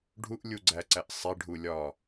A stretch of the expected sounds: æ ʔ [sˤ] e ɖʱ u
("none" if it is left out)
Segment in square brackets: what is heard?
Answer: sˤ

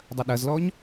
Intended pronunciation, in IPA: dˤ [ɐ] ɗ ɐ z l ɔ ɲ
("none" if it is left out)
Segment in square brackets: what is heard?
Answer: ɐ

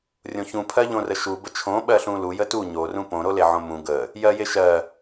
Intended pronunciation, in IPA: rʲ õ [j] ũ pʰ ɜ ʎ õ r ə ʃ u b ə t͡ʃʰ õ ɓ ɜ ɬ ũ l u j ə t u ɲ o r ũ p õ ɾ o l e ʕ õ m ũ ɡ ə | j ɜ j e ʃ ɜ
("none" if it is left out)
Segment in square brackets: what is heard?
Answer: ç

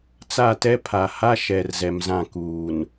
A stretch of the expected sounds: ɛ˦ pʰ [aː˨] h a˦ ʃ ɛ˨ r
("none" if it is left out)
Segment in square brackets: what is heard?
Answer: a˨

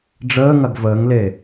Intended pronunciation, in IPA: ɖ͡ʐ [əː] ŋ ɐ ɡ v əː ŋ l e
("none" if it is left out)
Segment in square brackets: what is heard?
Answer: əː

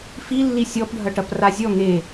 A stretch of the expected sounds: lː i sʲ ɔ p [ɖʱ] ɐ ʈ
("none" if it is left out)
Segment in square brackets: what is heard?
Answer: ɖʱ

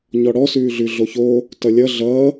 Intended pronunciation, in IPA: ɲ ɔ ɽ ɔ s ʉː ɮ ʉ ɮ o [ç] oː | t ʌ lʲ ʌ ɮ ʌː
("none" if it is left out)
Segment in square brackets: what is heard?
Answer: ç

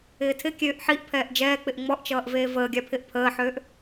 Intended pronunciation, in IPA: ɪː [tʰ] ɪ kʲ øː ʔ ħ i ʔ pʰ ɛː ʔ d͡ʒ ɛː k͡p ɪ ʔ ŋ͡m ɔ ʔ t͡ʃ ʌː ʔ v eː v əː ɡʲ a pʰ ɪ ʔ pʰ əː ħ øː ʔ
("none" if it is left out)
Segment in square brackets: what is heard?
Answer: tʰ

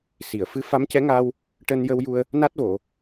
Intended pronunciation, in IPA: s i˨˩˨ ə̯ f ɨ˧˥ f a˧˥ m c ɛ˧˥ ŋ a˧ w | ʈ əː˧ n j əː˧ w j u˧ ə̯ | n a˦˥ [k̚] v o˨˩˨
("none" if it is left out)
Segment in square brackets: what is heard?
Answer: t̚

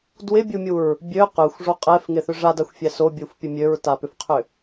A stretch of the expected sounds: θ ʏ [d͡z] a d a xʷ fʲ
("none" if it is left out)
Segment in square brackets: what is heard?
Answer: ʐ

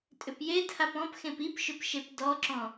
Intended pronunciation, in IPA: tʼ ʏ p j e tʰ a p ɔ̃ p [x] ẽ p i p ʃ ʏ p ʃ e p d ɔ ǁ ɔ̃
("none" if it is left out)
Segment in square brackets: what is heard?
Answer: x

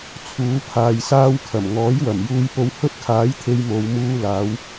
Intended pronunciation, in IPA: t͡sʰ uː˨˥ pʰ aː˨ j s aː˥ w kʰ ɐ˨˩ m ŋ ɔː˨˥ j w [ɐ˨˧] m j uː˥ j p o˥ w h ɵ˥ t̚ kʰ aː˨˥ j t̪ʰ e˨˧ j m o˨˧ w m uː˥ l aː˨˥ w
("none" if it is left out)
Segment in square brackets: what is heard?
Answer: ɐ˨˩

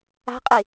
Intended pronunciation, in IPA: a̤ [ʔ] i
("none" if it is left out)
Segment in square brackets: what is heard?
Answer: qʼ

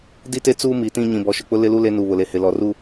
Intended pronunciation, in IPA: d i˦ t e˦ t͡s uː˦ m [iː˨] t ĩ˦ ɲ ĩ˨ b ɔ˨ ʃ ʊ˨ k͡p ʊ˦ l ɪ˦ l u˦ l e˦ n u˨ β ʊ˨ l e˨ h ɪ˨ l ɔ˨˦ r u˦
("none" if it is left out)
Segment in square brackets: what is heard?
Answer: i˨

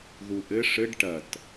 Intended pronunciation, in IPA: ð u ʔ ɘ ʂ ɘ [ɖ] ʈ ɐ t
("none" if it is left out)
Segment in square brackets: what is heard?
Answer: ɖ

